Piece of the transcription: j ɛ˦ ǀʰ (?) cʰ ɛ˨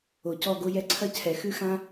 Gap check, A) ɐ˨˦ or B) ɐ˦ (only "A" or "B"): B